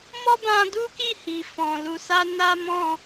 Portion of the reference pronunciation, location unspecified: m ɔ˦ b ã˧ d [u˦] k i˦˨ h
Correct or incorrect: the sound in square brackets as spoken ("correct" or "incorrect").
correct